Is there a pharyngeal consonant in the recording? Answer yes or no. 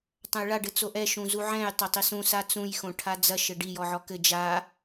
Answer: yes